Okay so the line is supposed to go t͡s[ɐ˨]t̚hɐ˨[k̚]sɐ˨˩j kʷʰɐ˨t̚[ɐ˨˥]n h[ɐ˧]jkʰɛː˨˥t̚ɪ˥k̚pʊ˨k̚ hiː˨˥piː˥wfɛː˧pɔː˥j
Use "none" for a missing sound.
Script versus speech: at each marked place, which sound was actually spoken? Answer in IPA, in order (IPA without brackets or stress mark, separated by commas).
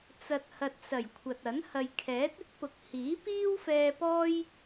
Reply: ɐ˨, t̚, ɐ˨˥, ɐ˨